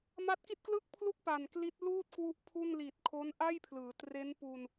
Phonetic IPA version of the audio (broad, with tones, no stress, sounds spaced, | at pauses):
m a˦˥ t̚ k i˥˩ t̚ k l ɯ˥˩ k̚ pʰ l u˥˩ k̚ p a˨˩ n k l i˦˥ t̚ l uː˥˩ t̚ k w u˦˥ ʔ pʰ u˥˩ n l i˨˩ t̚ kʰ o˦˥ n ʔ a˥˩ j pʰ l ɯː˩˦ t r e˦˥ n p u˧ n